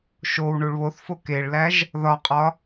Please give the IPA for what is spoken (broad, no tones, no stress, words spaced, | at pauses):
ʃow ɳuɭβoθfo keɭlæʒ | ðɒqʼɒ